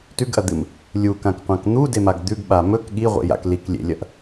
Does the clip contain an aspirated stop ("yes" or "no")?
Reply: no